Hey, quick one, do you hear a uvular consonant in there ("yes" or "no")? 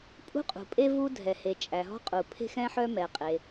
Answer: yes